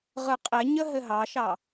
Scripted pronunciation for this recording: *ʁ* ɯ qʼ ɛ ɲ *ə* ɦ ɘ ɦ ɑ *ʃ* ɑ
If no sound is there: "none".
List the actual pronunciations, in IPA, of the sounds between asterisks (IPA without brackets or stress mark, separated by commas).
ʁ, ə, ʃ